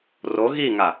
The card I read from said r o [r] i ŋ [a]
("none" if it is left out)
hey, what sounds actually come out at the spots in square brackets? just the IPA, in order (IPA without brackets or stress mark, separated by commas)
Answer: ɣ, a